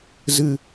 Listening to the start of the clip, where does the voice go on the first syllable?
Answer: low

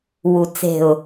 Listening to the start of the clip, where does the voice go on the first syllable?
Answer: low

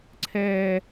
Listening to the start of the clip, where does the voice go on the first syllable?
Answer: high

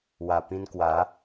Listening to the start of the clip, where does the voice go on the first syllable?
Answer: low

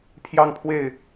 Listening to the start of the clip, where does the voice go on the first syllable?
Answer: falling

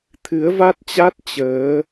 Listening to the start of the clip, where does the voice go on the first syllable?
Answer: rising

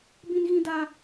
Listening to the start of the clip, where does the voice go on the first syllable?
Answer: high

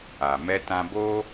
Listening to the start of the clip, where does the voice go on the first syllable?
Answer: low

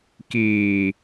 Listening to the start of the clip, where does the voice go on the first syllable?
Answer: low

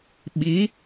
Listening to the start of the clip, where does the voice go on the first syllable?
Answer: rising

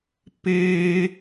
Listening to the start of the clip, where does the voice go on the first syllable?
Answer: high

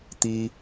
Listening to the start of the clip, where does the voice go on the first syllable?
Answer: high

